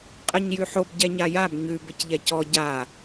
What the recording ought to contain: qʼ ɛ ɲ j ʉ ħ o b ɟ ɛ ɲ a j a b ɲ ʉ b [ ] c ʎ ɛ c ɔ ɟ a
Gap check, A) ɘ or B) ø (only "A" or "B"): A